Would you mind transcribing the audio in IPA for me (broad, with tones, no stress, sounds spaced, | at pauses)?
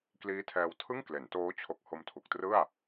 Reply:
k l iː˦˥ tʰ ɛː˧ w tʰ ɯ˥˩ ŋ k l e˩˦ n t oː˦˥ t͡ɕʰ o˦˥ k̚ h o˧ m tʰ u˨˩ k̚ t r ɯ˥˩ a̯